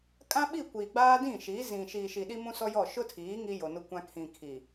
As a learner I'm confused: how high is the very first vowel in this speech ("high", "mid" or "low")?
low